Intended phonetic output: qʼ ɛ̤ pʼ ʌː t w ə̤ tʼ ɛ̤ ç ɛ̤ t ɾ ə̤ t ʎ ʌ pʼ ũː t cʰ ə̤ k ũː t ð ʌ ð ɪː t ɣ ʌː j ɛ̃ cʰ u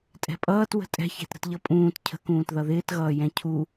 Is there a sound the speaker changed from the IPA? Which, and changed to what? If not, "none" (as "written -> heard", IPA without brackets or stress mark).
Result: qʼ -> tʼ